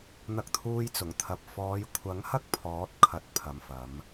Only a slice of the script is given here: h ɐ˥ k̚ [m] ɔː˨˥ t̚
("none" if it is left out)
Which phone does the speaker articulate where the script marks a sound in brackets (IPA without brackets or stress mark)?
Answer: pʰ